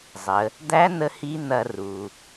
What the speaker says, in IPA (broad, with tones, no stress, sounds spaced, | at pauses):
zˤ ə˩˧ | d̪ æ˧˥ n̪ ə˧ h i˧˥ n̪ ɐ˧ r u˩